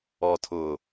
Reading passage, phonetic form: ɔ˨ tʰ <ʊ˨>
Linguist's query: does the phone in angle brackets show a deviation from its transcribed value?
no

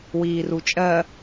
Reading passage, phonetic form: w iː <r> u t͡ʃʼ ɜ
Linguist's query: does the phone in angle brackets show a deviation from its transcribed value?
no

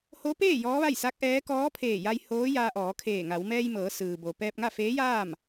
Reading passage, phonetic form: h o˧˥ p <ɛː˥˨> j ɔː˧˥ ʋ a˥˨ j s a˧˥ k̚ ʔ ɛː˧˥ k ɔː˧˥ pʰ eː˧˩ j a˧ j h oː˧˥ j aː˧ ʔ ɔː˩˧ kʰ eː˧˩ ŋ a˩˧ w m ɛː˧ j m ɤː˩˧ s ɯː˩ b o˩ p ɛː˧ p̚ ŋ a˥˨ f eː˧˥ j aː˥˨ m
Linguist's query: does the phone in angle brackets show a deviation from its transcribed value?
yes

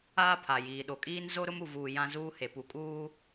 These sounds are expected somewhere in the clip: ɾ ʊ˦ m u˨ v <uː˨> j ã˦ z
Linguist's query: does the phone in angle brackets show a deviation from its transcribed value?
no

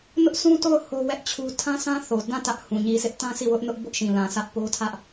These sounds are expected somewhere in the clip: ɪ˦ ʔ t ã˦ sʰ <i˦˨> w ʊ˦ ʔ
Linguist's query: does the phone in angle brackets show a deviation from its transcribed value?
no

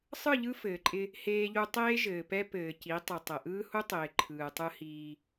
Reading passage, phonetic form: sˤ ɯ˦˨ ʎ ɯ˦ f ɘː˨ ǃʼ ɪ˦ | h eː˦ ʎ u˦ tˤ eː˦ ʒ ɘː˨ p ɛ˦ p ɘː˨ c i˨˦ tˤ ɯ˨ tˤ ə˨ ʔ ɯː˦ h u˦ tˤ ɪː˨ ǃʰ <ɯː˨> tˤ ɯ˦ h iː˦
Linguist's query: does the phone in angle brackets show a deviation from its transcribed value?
no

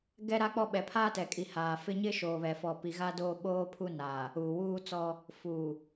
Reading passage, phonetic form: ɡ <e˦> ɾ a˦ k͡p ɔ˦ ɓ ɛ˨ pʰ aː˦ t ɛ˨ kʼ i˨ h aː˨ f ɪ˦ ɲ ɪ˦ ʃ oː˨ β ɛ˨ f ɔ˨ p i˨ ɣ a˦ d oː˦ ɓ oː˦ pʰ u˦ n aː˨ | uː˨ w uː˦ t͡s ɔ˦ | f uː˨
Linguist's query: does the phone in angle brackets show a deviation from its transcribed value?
yes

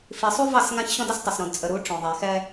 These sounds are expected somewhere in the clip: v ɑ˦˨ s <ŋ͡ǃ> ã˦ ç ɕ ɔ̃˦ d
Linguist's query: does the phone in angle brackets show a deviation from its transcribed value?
yes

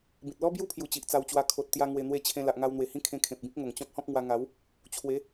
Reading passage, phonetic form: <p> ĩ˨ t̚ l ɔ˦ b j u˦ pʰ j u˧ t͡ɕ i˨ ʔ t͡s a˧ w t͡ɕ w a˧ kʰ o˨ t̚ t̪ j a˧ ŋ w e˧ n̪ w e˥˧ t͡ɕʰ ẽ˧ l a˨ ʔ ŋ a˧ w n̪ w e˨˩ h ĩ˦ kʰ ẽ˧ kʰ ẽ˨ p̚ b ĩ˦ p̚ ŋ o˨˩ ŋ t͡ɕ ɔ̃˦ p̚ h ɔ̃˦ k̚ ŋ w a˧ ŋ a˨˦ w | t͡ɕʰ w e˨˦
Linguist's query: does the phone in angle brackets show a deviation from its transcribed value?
yes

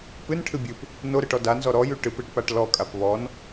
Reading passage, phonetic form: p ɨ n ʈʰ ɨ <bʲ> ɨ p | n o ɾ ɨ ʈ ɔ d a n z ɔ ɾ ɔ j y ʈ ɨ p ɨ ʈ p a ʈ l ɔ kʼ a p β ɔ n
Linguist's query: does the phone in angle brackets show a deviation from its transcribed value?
no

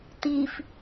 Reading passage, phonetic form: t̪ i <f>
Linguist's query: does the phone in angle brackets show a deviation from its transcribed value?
no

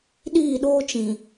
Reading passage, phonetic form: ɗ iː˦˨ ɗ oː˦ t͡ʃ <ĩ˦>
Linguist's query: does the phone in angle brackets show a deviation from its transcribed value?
yes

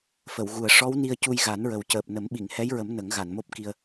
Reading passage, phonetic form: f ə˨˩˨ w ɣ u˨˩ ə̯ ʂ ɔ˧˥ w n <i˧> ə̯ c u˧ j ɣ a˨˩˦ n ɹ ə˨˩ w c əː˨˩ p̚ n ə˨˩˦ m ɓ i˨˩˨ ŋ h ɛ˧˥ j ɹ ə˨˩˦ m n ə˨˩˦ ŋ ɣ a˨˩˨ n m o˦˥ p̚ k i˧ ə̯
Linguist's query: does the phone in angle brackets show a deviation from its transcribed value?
no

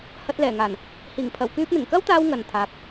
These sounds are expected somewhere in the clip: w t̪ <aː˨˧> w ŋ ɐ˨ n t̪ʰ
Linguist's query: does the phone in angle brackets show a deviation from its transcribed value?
yes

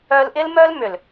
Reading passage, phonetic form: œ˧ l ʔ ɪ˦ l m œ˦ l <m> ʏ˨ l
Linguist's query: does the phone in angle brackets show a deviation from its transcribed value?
no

